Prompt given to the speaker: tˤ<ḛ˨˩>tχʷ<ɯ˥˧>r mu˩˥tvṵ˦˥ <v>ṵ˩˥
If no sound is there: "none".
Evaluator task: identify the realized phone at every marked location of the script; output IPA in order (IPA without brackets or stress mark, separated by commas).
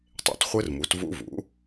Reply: ḛ˨˩, ɯ˦˥, v